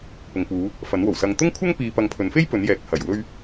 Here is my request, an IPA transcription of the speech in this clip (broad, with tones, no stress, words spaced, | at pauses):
pʊ˨ŋpuː˨˧ | fɐ˨˥nwo˨˩wsɐ˧ŋ t̪ʊ˥ŋkʷʰɐ˥ŋpiː˨pɐ˨ŋ pʰɵ˨˥n fe˥j pɵ˨˥njɛː˨˥k̚ hɐ˨˩jwɵ˥ɥ